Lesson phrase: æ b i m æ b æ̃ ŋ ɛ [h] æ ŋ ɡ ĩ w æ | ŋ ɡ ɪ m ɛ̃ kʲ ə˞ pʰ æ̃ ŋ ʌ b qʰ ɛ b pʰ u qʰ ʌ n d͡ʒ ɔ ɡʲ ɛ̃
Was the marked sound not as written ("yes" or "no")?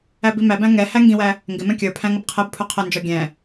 no